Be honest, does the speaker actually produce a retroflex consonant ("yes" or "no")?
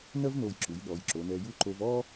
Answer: no